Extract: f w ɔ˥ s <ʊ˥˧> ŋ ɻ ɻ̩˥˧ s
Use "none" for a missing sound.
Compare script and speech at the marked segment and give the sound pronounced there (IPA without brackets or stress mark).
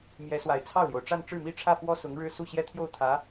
ʊ˧˥